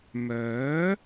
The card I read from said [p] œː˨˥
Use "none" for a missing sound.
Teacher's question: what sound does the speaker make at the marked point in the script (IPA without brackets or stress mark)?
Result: m